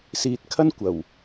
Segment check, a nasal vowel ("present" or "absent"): absent